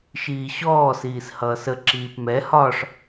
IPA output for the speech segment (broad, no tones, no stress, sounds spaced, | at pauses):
ʃ iː ɕ ɔː s iː s h ʌː s ə ǁ iː p m ɛ h ɒ ʂ